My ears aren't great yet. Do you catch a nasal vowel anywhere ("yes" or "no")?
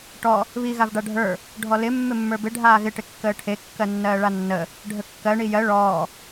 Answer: no